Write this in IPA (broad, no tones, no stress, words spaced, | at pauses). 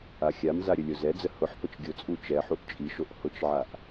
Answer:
axʲamza ɾʲəlʲozɛd͡zə hʊħpət͡ʃ ɡʲʊt͡sʼu t͡ʃɛħuʔ t͡ʃʼiʃoʔ hʊt͡ʃʕaʔ